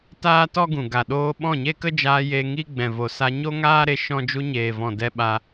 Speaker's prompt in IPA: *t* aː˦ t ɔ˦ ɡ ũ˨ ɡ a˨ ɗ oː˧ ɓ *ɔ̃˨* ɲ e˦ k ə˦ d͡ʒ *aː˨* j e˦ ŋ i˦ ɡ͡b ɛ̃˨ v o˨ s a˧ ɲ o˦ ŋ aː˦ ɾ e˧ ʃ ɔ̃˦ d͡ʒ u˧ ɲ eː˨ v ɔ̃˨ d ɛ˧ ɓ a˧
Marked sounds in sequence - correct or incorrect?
correct, incorrect, incorrect

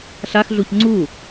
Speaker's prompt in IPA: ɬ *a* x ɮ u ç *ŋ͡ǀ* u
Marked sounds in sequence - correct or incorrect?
correct, correct

